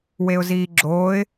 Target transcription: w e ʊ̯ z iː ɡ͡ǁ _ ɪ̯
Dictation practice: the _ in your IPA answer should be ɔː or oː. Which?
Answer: oː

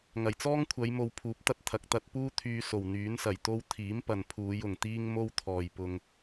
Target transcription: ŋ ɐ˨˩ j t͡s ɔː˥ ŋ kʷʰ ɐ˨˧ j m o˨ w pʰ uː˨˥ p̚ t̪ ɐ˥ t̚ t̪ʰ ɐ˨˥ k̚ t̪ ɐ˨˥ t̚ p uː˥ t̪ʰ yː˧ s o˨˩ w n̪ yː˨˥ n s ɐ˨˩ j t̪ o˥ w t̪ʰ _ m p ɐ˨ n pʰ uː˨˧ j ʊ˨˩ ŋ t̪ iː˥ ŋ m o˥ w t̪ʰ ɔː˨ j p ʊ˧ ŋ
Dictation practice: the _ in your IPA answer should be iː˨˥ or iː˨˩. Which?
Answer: iː˨˥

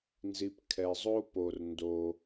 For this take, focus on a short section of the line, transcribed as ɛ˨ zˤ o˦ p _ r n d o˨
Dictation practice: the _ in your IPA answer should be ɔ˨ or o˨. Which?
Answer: o˨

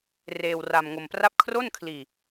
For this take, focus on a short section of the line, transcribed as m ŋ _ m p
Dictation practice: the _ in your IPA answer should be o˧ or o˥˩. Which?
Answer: o˧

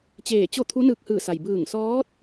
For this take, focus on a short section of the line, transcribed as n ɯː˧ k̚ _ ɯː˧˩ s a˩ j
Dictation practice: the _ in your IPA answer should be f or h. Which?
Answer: h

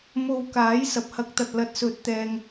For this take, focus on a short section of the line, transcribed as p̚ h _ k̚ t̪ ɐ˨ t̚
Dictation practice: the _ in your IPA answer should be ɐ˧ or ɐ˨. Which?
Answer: ɐ˧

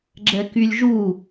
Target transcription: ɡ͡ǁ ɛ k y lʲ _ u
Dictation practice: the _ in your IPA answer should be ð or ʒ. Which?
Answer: ʒ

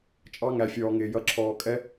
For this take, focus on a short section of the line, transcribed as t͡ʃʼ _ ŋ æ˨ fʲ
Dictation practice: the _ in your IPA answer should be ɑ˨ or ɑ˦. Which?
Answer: ɑ˦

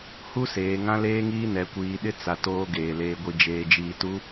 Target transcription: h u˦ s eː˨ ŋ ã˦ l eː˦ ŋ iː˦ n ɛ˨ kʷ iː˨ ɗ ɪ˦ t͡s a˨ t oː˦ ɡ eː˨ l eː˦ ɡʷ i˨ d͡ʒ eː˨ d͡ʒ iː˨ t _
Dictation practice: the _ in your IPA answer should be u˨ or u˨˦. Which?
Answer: u˨˦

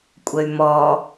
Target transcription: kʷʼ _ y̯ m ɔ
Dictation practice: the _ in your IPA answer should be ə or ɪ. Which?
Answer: ə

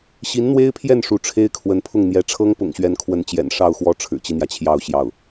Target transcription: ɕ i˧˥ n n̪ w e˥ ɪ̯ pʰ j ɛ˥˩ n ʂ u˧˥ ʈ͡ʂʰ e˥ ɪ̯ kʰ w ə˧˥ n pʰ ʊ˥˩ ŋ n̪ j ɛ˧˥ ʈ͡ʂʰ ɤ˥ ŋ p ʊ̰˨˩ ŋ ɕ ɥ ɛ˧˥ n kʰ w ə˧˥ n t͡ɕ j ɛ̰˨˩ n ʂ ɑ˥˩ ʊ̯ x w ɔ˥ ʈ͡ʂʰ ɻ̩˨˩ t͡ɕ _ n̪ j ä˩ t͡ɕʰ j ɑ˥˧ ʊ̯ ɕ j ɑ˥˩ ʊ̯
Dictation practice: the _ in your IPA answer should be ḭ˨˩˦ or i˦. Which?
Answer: i˦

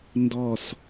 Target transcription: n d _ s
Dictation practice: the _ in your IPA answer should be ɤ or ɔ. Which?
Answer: ɔ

